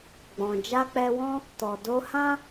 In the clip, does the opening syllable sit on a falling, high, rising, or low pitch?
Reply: low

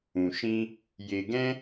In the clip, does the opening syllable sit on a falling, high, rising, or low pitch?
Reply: low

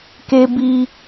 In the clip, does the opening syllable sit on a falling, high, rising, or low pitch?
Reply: high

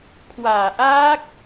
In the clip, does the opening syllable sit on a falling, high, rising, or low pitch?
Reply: low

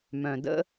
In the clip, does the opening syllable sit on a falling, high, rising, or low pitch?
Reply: low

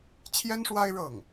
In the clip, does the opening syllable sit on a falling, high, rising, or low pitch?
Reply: high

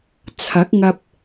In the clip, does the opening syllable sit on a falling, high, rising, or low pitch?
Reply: rising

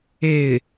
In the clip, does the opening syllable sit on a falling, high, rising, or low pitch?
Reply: falling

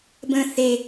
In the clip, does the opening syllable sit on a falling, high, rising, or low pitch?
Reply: low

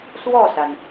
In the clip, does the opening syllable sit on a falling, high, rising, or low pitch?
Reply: falling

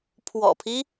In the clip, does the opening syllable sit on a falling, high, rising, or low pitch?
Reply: low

